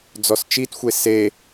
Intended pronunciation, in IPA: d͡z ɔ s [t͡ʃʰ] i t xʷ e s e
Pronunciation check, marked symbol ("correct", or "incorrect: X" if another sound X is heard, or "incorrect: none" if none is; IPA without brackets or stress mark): incorrect: t͡ʃ